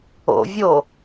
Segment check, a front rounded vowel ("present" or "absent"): absent